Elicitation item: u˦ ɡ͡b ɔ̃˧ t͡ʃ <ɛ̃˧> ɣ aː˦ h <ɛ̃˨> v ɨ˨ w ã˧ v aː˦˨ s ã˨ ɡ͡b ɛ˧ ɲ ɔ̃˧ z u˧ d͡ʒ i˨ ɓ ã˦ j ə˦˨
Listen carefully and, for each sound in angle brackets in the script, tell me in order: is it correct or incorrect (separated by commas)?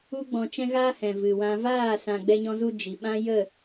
incorrect, correct